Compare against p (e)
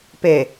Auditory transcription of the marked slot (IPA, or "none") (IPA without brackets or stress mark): e